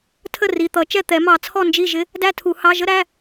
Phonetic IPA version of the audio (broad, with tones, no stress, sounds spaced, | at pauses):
tʰ ə˥˩ r i˩˧˩ t̪ ʌ˨˩˦ t͡ʃ ɛ˥˩ t̪ ɛ˨˩˦ m ɑ˨˩˦ t͡sʰ ɔ˥˩ n d͡ʒ i˥˩ ʒ ɪ˦˥ | d æ˥˧ tʰ u˨˩˦ h ɑ˩˧˩ ʒ ə˥˧ ɾ æ˩˧˩